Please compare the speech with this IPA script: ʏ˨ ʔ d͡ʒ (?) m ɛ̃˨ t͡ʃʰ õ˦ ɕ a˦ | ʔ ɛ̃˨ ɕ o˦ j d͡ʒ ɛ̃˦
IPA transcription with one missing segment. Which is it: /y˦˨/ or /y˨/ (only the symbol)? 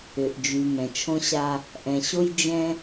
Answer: y˨